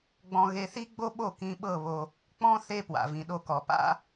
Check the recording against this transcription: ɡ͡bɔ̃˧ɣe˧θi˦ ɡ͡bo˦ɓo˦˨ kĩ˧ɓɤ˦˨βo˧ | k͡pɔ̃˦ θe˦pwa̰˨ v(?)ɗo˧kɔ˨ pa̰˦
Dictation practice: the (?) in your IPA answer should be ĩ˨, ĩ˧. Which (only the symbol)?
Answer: ĩ˨